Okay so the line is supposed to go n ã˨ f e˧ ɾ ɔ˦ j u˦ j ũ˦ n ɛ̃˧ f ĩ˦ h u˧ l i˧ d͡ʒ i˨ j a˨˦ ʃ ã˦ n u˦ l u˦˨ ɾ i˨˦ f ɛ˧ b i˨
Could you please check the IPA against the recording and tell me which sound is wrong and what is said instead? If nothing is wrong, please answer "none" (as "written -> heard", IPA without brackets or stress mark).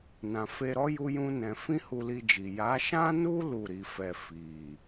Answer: b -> f